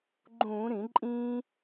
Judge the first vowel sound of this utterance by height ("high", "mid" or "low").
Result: high